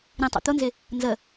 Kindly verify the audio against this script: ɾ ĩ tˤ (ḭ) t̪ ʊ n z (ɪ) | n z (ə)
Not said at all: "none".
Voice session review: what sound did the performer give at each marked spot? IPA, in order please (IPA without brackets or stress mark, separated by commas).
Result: ḭ, ɪ, ə